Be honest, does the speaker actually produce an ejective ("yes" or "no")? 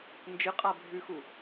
yes